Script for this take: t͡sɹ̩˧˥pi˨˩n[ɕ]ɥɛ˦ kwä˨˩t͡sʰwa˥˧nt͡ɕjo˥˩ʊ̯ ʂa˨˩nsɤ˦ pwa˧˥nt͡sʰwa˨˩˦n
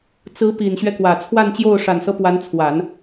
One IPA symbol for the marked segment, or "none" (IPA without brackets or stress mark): ɕ